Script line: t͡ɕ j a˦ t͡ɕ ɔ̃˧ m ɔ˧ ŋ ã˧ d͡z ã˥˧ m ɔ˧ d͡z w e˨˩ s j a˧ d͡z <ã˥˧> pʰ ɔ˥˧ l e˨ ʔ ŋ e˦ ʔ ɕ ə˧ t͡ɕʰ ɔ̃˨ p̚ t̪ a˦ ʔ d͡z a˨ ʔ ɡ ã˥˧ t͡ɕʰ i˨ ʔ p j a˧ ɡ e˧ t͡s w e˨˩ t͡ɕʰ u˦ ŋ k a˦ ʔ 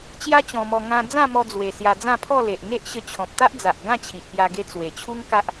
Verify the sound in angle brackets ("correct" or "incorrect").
correct